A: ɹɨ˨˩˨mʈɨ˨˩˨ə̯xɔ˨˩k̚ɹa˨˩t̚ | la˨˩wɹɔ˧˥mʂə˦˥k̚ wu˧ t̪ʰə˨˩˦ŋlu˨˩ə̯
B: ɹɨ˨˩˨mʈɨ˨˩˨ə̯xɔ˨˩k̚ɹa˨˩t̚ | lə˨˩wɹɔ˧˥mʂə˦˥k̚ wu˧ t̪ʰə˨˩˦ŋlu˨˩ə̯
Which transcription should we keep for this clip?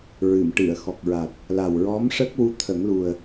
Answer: A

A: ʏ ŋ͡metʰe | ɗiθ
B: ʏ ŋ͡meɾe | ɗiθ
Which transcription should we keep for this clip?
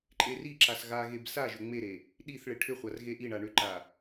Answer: B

